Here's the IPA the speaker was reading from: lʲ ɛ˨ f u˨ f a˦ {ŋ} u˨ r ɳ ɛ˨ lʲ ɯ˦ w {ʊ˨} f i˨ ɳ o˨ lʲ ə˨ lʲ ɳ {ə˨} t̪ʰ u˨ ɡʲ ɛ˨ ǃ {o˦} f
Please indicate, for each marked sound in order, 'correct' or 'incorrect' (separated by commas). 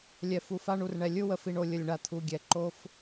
incorrect, incorrect, incorrect, correct